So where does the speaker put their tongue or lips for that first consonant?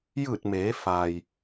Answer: palate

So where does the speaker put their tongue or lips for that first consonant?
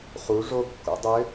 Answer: uvula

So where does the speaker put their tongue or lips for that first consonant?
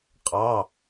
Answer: uvula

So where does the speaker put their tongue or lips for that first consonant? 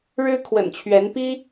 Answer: retroflex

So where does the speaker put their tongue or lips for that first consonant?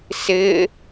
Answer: tongue tip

